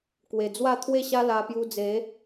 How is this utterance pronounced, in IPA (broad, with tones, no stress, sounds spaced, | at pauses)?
k w e˨˩ d͡z w a˥˧ t̪ʰ w e˥˧ ɕ a˦ l a˧ p j u˧ d͡z e˨˦